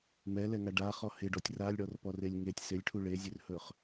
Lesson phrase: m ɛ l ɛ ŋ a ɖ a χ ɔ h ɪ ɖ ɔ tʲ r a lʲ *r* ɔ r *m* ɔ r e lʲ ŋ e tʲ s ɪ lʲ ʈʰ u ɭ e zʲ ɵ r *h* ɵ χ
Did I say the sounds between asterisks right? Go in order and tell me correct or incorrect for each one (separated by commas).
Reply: incorrect, incorrect, correct